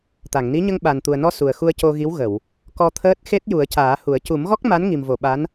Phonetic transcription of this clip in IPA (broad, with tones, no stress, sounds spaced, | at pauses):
t̪ a˨˩˨ ŋ n i˧˥ ɲ ə˧ ŋ ɓ a˨˩ n t̪ u˨˩ ə̯ n ɔ˧ s u˨˩ ə̯ x u˧ ə̯ c o˧ ɣ i˧˥ w ɣ ə˨˩˨ w | k ɔ˧ t̪ʰ əː˦˥ t̚ x e˦˥ t̚ j u˨˩˦ ə̯ c aː˨˩˦ h u˨˩˦ ə̯ c u˨˩˦ m ɣ ɔ˦˥ k̚ m a˧˥ n ŋ i˨˩ m v o˨˩˨ ɓ a˧˥ n